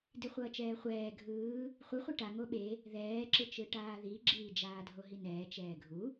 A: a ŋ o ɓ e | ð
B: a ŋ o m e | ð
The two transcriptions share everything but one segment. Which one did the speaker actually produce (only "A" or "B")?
A